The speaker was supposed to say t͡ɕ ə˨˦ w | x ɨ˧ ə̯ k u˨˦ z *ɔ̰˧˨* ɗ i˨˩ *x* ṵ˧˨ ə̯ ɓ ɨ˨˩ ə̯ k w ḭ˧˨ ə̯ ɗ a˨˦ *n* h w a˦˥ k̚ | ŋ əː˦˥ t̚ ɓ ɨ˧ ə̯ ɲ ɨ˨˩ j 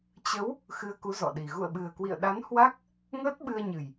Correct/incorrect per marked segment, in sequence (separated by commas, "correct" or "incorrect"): correct, incorrect, correct